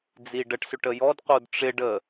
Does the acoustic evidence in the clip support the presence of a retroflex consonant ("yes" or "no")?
yes